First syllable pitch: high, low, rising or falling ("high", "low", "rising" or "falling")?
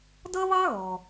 high